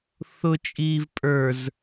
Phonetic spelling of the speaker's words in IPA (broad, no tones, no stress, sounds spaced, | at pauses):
θ ʊ t͡ʃʼ iː v pʼ ə˞ z